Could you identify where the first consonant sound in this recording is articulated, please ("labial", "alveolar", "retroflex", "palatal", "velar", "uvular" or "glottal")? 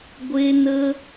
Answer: velar